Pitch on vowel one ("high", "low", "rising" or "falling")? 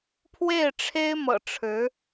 falling